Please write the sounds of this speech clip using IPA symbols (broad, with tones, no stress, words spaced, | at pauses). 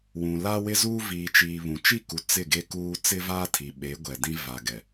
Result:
wũ˨la˦ wɪ˦zuː˦ viː˨t͡ʃiː˨ βũ˨ t͡ʃi˦˨ku˨ t͡sɪ˦˨ɡe˦kuː˦ t͡sɪ˦vaː˦ tʰi˨ ɓe˨˦ɡʷɛ˨dĩ˦ va˨ɡɛ˨